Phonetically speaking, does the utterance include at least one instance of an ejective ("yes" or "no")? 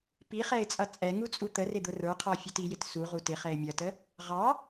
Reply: yes